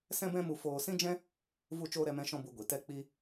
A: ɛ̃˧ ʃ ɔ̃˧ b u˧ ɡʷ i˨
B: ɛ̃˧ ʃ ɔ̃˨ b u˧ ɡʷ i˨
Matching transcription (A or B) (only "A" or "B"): A